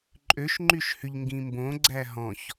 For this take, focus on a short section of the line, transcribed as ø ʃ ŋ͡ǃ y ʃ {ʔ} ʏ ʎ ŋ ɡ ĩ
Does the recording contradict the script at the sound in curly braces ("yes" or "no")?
yes